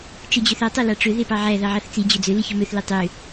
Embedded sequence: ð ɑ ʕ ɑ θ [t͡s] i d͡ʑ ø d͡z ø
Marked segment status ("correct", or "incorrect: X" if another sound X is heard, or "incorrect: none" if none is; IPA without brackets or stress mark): correct